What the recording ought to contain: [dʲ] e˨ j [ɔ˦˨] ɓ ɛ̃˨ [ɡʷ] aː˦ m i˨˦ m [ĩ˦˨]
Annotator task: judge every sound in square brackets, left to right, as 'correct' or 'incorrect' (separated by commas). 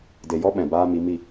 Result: incorrect, incorrect, incorrect, incorrect